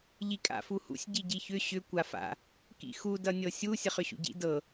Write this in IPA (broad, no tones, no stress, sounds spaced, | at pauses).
ʎ i kʼ a̰ f u h ṵ sʲ ɟ i ɟ i ç ʏ ɕ ʏ kʷ a f a̰ | k ḭ x u d ʌ nʲ ɤ sʲ u sʲ ʌ χ ʏ ɕ ṵ ɟ ḭ d ɤ